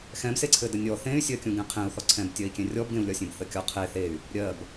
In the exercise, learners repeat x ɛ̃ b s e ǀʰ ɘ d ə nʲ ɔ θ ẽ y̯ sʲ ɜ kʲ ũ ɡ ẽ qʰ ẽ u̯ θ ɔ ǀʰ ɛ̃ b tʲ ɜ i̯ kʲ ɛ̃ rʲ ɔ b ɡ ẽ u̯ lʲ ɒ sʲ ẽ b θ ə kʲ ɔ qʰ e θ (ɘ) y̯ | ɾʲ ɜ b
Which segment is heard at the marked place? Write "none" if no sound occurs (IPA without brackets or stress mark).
e